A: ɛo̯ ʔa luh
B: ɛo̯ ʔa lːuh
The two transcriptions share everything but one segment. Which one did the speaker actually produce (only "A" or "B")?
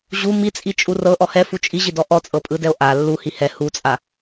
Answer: B